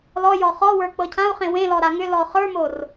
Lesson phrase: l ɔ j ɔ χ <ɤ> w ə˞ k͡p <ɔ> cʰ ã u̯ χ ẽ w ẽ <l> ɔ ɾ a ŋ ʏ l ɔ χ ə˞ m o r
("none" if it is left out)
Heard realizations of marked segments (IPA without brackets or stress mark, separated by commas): ɔ, ɤ, l